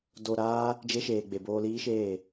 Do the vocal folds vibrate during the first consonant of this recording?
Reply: yes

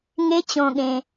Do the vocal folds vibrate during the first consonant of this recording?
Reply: yes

